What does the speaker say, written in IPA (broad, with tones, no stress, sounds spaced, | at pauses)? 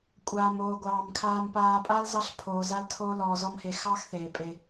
kʷʼ aː˨ m oː˨ ɡʷ ɑː˨ m kʰ aː˨ m p aː˨ pʼ a˦ l z ɑ˦ ɬ pʰ oː˨ z a˦ l tʰ oː˦ l ɔː˨ z ɔ˦ m h e˨ x ɑ˦ x θ eː˨ pʼ e˦